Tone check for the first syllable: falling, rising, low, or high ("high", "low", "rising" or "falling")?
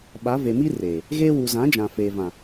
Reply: rising